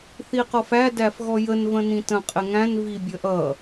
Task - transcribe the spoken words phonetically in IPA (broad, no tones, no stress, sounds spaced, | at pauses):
θ i q ɔ f æ d æ f ɣ ɔ j ə n v ə̃ n ĩ t ə̃ qʼ ɪ ŋ æ̃ n v i bʲ ə ʔ ʌ